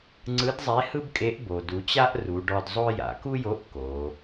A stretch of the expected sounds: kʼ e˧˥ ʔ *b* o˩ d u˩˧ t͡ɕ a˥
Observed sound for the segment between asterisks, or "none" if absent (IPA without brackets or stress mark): b